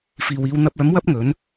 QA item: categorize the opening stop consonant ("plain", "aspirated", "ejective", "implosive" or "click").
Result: plain